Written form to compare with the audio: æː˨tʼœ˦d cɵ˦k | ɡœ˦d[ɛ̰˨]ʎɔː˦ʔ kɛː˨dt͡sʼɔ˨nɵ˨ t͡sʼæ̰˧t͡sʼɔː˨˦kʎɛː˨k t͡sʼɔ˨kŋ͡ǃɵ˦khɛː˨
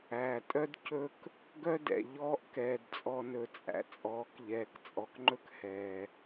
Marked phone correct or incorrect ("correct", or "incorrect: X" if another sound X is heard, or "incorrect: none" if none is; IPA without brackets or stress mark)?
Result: correct